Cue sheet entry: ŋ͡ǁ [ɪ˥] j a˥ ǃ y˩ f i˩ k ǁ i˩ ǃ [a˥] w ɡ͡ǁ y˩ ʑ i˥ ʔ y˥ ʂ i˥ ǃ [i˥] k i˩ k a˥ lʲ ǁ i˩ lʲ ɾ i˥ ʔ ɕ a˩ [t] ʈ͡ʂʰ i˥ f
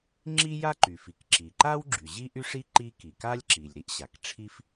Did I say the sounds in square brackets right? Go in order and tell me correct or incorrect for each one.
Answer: incorrect: i˥, correct, correct, incorrect: k

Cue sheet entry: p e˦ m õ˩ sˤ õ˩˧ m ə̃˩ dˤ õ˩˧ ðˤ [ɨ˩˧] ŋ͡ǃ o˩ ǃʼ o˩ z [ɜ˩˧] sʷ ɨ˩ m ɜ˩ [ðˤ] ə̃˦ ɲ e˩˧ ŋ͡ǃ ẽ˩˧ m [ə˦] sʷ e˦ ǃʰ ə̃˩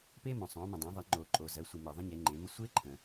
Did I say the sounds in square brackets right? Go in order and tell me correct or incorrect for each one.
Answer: correct, correct, correct, correct

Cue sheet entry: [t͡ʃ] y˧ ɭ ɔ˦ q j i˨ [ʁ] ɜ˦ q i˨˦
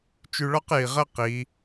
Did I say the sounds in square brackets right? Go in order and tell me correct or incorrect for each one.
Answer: correct, correct

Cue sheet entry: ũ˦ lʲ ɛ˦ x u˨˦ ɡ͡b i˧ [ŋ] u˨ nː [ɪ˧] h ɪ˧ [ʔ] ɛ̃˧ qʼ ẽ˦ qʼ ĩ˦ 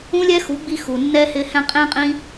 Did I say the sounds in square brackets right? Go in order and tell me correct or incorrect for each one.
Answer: incorrect: x, incorrect: ɛ˧, incorrect: h

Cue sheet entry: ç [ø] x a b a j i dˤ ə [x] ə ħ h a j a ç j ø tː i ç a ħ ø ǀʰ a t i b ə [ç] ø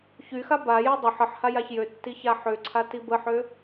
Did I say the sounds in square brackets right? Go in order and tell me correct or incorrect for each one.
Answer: incorrect: y, incorrect: ħ, incorrect: ħ

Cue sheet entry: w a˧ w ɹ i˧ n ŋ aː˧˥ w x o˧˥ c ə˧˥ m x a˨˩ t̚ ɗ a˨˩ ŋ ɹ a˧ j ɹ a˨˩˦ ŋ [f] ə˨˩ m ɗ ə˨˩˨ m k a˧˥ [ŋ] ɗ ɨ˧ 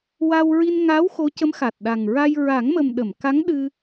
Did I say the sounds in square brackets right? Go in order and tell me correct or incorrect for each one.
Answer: incorrect: m, correct

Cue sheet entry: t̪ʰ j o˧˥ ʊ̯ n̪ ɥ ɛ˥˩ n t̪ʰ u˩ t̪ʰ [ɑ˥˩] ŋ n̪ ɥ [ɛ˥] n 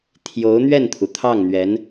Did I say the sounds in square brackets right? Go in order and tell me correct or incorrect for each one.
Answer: correct, incorrect: ɛ˧˥

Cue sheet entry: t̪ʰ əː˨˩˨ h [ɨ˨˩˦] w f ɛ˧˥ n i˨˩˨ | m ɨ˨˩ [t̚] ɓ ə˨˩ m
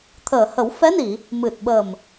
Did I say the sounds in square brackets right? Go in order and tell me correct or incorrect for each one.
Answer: incorrect: ə˨˩˦, correct

